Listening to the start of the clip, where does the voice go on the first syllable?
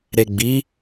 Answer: low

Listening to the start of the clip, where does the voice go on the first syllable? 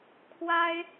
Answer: high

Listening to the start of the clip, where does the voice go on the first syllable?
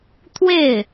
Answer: falling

